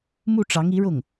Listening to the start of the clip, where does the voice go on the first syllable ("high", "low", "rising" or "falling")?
falling